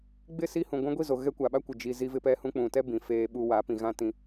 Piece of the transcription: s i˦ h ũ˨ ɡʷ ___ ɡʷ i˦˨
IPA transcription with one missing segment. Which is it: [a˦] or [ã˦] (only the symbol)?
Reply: ã˦